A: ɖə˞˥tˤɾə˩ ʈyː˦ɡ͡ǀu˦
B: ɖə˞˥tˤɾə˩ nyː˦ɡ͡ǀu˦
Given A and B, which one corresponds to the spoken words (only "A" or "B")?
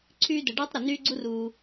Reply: B